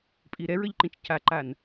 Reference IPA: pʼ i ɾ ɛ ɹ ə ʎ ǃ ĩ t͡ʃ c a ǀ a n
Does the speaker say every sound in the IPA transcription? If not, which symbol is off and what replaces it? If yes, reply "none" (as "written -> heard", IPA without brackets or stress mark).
ǀ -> ǃ